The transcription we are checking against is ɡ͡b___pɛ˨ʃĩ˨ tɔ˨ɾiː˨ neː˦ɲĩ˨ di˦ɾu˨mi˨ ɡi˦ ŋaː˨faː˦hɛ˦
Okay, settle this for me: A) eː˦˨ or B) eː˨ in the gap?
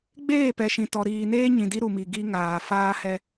A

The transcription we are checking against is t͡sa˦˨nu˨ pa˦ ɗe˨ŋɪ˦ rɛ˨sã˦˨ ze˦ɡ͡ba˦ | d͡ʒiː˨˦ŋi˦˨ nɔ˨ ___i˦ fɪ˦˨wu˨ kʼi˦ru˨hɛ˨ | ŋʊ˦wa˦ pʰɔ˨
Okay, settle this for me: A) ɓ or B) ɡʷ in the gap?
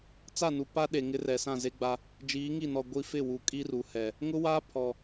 B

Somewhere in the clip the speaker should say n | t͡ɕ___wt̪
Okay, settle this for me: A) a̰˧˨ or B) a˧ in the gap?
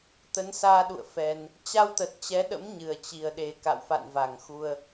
B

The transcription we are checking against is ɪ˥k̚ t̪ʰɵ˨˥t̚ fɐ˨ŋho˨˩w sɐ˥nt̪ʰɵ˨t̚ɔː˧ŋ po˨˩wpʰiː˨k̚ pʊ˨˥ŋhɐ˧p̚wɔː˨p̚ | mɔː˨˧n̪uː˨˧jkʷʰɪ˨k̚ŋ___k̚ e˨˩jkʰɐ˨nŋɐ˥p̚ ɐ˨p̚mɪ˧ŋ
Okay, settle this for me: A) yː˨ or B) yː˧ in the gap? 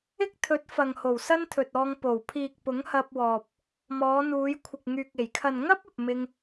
A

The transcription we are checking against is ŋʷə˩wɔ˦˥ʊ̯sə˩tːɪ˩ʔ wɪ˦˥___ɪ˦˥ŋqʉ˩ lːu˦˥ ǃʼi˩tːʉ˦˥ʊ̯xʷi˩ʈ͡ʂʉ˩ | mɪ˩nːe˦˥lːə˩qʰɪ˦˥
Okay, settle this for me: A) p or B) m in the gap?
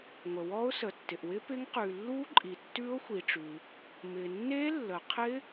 A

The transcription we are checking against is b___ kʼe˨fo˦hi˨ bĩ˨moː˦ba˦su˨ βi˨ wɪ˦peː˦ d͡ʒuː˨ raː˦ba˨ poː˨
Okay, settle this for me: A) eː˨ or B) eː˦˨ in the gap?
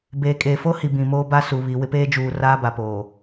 A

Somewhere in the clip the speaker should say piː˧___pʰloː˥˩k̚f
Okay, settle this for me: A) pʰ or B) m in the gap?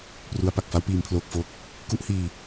B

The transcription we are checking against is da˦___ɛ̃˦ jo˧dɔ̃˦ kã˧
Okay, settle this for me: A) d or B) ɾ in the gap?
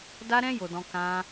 B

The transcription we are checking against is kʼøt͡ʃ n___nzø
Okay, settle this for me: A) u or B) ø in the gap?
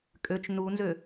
A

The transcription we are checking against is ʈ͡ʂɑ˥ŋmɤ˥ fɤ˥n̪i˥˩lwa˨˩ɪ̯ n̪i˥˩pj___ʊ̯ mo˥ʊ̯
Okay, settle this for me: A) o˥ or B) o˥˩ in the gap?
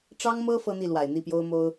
A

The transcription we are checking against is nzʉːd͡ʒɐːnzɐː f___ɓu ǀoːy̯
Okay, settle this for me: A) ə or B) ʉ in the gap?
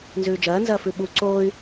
B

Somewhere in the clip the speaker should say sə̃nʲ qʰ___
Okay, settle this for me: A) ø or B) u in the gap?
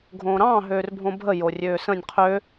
A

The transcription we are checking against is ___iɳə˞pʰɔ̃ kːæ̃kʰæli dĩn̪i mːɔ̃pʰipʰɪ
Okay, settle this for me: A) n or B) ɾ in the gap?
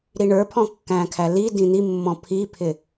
B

